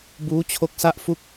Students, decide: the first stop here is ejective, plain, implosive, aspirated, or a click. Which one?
plain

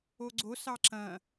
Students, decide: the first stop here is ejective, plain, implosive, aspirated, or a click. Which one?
click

